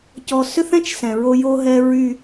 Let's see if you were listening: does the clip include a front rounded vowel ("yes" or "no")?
yes